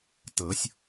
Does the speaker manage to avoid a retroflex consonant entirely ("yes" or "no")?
yes